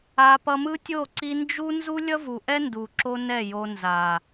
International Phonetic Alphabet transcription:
a˧ p ʌ˧ m ɯ˦ tʲ o˦˨ ǀ i˧ n d͡ʒ u˦ n z u˦ lʲ ʌ˦ v u˨ ʔ ɛ˦ n d u˨ ǁ o˦ n ɛ˦˨ j o˧ n z a˨

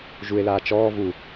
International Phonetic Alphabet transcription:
ʒ u e̯ l aː t͡ʃ ɔː v u

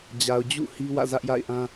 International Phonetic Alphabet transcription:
d͡ʑ a˨ ʊ̯ d͡ʑ ṵ˦˨ h i˦ w ä̰˦˨ z ä˦ ʔ j a̰˦˨ ɪ̯ ʔ ã˦

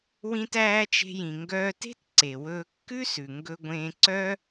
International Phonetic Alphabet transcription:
w ĩ˧ t æː˧ t͡ʃ e̤˧ j ĩ˩ ŋ ɡ œː˧ t e̤˥ t ǀ e˩ w ɵː˧ kː ʉ˥ s ʉ˩ ŋ ɡ ɵ˧ ɡʷ ẽː˧ ǀ œː˥

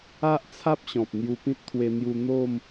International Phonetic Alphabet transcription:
a˦ ʔ t͡sʰ a˦ p̚ ɕ ɔ̃˨ p̚ n̪ j u˧ p ĩ˦ t̚ t̪ʰ w e˧ n̪ j u˧ n̪ o˥˧ m

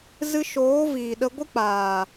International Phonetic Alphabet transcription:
z ɨ˧ ʃ oː˨˦ v iː˨ ɗ ə˧ ɡʷ ɨ˦ k͡p aː˨

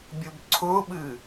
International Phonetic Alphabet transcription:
bʲ ʊ b ǀʰ ʊ ɓ ɨ

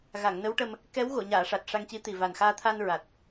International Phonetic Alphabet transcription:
ɣ a˨˩˨ ŋ n ə˧˥ w ʈ ə˧ m | k ɛ˧˥ w ɣ o˨˩˨ ɲ aː˨˩˨ ʂ a˨˩ t̚ ʂ a˧ ŋ c i˧˥ t̪ i˨˩ v a˨˩ n x aː˧ t̪ʰ a˧ n ɹ a˨˩ t̚

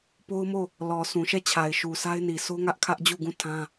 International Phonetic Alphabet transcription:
p o˦ ʊ̯ m o˦˨ | l ɔ˨ s ũ˨ ʃ ɛ˦˨ t͡ɕʰ a˨ ɪ̯ ʃ u˨ s a˦ ɪ̯ n i˨ s o˦ ŋ ä˦ ʔ kʰ ä˦ ʔ d͡ʑ u˦˨ ɡ ũ˦˨ tʰ ã˦

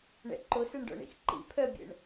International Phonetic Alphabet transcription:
ɳ ɛ̰ ǃ o s ɛ ɳ ɖ ɔ̰ ɳ ḭ x ǃ ḭ pʰ œ bʲ ɛ̰ ɳ

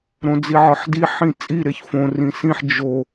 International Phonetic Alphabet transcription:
ɾ õ d͡z i ʕ ɒ ħ d i ħ ĩ t͡sʼ i ɾ e ç f õ r ĩ s ĩ ħ d͡ʒ o

